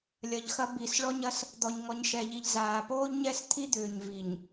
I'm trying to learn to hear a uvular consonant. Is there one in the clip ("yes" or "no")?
no